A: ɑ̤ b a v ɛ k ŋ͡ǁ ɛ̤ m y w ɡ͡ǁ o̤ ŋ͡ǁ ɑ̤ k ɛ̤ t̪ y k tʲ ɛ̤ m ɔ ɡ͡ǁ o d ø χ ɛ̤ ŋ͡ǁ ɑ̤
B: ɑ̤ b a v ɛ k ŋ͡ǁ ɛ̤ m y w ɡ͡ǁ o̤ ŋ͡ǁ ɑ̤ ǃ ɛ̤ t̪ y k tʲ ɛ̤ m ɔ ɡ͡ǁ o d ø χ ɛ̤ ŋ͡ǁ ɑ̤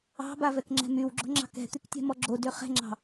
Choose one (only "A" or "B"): A